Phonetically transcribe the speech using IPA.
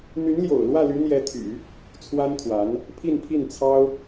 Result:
n̪ y˧˥ n l j o̰˨˩ ʊ̯ l w ä˥˩ l y˧˥ n̪ j ɛ˧˥ t̪ʰ y̰˨˩˦ | t͡sʰ w a˥ n t̪ʰ w a˧˥ n | pʰ i˥˧ n pʰ i˥˩ n t͡sʰ ɑ˥ ʊ̯

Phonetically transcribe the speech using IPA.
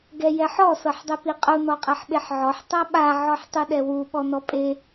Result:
ɡ ɛ j ɛ ħ ɔ s ɤ ħ dˤ ɛ p i qʼ u n ɔ qʼ ɛ ħ ɓ e ħ ʕ ɔ ħ tˤ a ɓ a ʕ ɔ ħ tˤ ɯ ɗ ɛ w u ɓ ɔ n ɔ pʼ e

